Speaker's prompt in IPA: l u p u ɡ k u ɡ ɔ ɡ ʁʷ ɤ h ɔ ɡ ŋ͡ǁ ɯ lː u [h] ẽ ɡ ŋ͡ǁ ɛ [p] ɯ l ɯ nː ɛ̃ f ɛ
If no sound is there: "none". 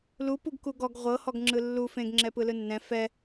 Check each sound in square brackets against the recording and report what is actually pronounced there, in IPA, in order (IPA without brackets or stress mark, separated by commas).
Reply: f, p